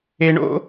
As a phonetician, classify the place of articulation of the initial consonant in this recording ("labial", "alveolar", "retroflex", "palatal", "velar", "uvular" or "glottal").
retroflex